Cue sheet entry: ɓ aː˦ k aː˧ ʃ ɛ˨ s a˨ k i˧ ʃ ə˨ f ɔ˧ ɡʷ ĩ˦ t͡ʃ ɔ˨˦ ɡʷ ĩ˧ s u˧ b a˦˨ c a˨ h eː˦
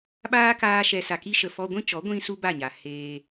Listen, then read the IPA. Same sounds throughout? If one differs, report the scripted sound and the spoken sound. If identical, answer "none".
c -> ɲ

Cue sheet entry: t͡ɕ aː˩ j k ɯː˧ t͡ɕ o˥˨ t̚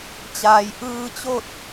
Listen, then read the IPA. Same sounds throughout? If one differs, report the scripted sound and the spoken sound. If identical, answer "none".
k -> ʔ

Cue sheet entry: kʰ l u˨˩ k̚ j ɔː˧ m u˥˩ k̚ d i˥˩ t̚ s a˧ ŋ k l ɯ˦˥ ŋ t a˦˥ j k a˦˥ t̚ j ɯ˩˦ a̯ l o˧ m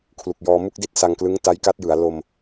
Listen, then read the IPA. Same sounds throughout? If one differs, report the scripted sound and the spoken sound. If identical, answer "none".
none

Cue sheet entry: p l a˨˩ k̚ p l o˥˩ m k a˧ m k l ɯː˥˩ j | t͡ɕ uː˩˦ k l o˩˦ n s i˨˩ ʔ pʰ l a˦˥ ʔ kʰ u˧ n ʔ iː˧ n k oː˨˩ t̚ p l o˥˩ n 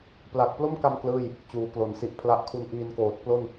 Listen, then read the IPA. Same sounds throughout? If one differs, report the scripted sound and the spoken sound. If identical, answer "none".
none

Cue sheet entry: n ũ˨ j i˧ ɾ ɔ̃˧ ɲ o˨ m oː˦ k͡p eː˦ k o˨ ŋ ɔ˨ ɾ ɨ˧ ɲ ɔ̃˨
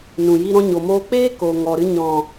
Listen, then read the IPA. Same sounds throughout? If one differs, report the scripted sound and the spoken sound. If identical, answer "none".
oː˦ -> oː˧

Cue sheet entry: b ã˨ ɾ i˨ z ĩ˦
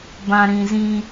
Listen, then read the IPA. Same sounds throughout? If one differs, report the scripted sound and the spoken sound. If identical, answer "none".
i˨ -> ĩ˨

